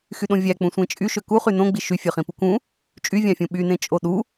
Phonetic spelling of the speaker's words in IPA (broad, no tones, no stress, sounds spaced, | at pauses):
x y ɗ õ vʲ æ k͡p ũ sʷ ẽ t͡ʃʼ y ʃ ø k u χ y n õ ɡ͡b i ʃ y fʲ ø χ ĩ p u k ũ | t͡ʃʼ y vʲ ɑ̃ fʲ ũ ɓ y n ẽ t͡ʃʼ o ɗ u